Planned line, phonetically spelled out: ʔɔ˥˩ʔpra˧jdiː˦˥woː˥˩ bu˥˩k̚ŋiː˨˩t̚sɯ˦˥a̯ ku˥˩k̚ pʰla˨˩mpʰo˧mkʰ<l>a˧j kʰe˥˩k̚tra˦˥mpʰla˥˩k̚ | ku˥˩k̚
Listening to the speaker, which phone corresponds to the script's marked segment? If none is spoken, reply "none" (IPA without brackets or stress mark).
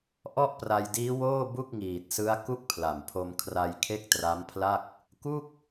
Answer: r